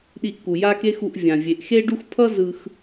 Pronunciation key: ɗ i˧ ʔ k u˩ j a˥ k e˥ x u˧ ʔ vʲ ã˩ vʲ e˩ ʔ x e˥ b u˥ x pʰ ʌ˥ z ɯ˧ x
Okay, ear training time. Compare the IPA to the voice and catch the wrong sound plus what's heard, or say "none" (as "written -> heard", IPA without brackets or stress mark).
b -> ɖ